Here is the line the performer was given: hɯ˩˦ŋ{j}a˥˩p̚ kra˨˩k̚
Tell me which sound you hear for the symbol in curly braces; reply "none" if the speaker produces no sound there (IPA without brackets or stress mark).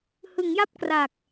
j